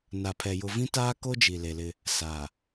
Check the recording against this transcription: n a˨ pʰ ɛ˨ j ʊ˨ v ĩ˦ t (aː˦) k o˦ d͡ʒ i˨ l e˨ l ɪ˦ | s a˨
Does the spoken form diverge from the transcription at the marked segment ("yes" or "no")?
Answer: no